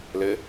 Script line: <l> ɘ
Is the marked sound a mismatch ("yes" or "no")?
no